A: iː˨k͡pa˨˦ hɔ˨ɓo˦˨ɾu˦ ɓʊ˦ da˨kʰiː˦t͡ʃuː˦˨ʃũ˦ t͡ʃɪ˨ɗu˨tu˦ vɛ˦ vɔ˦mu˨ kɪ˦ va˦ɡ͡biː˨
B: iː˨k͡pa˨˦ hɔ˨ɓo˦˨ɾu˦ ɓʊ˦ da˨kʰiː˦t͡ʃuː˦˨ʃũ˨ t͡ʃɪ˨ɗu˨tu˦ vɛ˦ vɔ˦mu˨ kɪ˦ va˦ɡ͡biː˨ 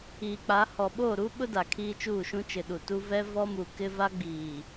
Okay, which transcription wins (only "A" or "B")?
A